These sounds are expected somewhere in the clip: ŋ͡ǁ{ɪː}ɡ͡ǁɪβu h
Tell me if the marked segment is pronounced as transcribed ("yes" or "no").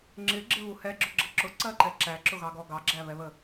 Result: no